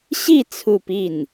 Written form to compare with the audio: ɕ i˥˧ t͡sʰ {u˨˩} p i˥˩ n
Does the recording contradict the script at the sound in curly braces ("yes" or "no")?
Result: yes